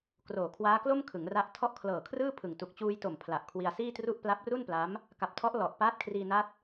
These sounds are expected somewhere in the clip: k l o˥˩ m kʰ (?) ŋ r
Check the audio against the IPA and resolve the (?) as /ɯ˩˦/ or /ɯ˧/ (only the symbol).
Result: ɯ˩˦